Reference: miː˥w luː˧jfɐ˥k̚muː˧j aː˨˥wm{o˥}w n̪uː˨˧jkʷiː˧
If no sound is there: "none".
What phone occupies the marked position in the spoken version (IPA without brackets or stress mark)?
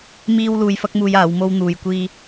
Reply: o˥